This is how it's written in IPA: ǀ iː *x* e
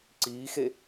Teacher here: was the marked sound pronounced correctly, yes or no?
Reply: yes